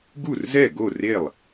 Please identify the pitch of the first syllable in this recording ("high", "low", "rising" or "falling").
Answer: falling